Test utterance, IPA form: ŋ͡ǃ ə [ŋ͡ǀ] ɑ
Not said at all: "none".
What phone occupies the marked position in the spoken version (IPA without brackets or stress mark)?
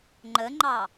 ŋ͡ǃ